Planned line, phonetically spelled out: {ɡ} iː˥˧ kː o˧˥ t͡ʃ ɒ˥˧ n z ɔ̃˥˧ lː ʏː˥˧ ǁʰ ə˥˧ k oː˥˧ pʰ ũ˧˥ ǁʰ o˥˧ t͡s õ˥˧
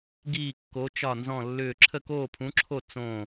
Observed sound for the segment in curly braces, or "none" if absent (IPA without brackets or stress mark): ɡ